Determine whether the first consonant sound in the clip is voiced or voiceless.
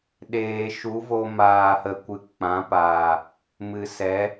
voiced